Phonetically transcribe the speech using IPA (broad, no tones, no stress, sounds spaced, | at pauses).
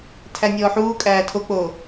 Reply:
tʰ æ nʲ ɔː ħ uː kʼ æː tʰ o k͡p oː